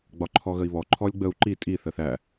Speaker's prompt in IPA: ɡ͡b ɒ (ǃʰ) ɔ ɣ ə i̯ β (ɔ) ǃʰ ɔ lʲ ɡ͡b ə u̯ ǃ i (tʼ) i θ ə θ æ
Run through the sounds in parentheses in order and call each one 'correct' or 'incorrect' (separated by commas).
correct, correct, correct